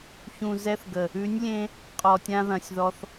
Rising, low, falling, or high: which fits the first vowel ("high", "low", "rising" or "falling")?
low